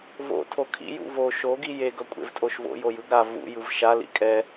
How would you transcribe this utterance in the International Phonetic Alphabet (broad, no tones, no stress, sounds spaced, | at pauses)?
v o̰ tʰ o kʰ ḭ j ṵ v o ʃ o ɡ i j e ɡ ʌ kʷʼ ḛ v tʼ o ʃ v o̰ j o j ɯ ɡ ɾ a v ṵ j ɯ v ʃ a l ḭ kʼ ɛ